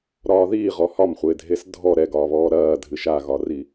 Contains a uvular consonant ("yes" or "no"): yes